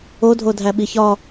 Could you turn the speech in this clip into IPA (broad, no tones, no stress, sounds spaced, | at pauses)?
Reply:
o dʱ o dʱ æ ɓ i ç ɒ